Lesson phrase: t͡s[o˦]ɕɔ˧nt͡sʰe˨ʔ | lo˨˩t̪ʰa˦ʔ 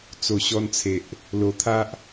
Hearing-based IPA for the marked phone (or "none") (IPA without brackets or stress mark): o˨˩